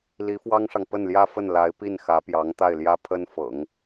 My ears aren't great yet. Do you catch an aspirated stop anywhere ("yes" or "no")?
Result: yes